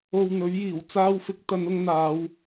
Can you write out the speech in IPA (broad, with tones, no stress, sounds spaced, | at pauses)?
o˨ w n̪ ɵ˨˥ ɥ j iː˨˩ w t͡s aː˧ w f ɪ˨˥ k̚ t̪ ɐ˨˧ n ʊ˧ ŋ n̪ aː˨˧ w